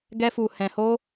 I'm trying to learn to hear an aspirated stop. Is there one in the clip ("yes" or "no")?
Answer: no